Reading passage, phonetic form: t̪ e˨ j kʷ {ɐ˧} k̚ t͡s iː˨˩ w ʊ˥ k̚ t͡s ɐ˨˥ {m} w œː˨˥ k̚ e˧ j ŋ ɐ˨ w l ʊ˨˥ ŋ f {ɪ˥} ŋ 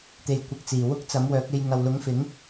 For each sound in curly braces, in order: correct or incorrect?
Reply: incorrect: ɐ˨˥, correct, incorrect: ɪ˨˥

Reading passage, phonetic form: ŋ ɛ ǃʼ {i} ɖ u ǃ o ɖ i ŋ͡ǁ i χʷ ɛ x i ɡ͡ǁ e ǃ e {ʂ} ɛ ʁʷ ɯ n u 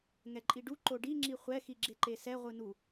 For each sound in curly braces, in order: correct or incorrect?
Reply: correct, incorrect: s

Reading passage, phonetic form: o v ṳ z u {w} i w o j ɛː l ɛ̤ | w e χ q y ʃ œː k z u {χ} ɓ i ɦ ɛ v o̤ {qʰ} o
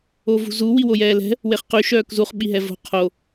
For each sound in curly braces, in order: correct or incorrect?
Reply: correct, correct, correct

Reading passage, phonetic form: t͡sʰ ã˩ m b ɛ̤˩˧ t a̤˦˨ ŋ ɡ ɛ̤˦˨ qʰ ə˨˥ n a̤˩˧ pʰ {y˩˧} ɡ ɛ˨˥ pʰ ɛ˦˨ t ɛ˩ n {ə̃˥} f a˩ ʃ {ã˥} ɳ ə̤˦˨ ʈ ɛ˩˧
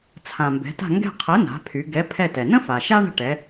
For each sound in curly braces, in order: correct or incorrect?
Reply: correct, correct, incorrect: a˥

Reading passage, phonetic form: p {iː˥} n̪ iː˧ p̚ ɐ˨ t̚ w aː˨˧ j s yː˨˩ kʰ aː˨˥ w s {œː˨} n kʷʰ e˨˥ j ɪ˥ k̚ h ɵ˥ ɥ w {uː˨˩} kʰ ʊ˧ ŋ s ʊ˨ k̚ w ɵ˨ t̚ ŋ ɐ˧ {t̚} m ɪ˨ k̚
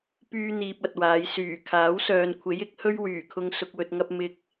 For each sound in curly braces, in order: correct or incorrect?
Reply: incorrect: yː˥, correct, incorrect: yː˨˩, incorrect: p̚

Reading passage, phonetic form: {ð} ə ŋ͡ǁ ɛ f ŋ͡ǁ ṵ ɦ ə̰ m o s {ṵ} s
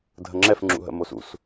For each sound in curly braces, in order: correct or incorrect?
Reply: incorrect: dʱ, correct

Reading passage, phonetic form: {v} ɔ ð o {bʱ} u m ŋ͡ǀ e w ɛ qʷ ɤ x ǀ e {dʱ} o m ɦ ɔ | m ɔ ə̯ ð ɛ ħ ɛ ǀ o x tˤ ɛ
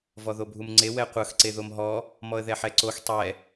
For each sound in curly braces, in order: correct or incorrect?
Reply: correct, correct, incorrect: ð

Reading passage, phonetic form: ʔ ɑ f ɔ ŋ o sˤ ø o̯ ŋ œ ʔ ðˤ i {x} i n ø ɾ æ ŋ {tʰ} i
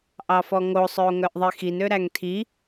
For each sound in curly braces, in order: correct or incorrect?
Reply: correct, correct

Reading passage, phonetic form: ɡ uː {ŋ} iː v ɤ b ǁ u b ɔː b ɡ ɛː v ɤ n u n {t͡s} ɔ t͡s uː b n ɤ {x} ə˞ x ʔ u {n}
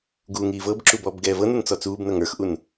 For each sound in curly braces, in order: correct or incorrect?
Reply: correct, correct, incorrect: ŋ, correct

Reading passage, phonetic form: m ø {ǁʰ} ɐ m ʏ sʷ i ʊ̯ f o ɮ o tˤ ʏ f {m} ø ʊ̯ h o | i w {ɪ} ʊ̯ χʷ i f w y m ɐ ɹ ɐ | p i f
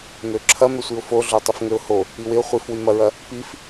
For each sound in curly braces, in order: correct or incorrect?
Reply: correct, incorrect: ŋ, correct

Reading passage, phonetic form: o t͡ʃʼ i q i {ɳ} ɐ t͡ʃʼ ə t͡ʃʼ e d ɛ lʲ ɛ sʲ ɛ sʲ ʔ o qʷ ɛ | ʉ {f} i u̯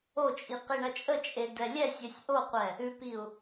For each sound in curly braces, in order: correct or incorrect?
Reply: correct, incorrect: p

